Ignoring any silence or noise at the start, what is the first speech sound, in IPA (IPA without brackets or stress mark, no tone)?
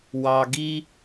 w